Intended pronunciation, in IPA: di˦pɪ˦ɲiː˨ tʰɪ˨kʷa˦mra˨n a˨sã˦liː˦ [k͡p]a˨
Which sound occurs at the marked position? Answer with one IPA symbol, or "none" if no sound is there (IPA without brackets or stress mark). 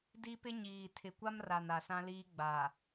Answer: ɡ͡b